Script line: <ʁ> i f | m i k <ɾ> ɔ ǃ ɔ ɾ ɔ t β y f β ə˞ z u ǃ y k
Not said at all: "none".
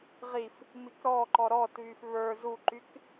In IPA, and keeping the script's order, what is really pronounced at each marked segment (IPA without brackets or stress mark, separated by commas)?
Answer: ʁ, ɾ